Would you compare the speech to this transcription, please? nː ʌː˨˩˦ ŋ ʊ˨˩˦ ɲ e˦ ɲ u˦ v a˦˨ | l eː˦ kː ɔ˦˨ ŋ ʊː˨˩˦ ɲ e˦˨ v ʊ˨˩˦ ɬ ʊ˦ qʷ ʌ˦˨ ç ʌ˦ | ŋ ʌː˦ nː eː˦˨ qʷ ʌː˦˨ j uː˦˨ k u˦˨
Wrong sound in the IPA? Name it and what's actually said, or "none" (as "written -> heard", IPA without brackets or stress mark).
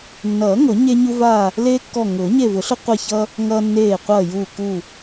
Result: none